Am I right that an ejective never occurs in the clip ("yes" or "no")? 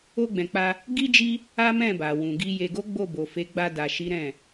yes